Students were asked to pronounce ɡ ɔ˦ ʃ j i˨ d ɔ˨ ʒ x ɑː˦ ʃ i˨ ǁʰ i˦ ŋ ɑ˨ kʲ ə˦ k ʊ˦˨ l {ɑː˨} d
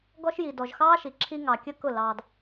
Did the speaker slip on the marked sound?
no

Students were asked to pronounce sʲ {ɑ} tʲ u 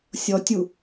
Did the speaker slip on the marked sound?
yes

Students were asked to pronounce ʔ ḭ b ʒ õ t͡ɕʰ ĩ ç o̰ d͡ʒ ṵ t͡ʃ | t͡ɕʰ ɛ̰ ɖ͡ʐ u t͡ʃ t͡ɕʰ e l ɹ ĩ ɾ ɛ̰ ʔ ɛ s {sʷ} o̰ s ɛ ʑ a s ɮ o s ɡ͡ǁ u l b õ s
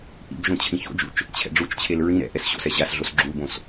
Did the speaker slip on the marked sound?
yes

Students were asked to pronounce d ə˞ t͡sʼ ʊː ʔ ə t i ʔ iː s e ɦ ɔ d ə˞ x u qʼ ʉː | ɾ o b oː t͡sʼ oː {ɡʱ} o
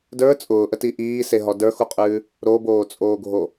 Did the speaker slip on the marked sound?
no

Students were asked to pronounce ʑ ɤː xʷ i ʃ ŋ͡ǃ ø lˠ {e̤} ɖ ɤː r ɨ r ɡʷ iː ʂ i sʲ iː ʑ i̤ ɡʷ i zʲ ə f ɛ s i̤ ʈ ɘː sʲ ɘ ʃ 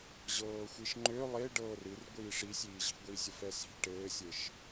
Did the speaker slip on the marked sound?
yes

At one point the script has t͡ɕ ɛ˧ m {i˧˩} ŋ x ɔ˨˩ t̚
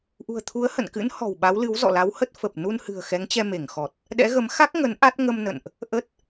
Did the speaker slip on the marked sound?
yes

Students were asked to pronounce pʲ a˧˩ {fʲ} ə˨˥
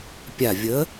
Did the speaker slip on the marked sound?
yes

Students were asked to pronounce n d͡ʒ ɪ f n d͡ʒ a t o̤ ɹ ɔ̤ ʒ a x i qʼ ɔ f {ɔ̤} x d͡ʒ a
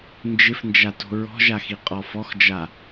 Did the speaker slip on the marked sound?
yes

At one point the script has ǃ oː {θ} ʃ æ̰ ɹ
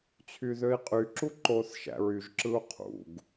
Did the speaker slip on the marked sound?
no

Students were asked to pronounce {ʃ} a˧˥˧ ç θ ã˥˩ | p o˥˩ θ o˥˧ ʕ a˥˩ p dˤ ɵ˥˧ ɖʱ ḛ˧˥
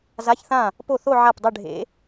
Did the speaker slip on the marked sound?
yes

